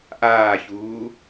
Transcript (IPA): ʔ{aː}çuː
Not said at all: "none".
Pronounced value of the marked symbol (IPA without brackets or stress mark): aː